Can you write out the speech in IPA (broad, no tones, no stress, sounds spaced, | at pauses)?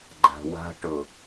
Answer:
ɡ͡ǃ a̤ w a̤ ʈ ʊ